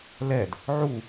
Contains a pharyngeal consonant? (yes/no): yes